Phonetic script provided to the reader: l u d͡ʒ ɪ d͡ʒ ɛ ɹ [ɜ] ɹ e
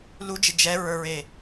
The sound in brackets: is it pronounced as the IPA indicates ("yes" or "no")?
no